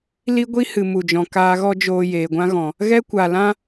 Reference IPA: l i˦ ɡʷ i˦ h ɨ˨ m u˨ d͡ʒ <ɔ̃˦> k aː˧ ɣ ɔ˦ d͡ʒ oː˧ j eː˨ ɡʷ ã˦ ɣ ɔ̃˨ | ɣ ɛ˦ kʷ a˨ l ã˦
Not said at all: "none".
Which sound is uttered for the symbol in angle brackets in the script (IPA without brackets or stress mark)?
ɔ̃˨